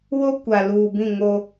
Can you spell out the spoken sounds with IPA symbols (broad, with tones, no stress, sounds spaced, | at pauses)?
w o˦ kʷ a˨ l uː˨ b ĩ˦˨ ŋ o˦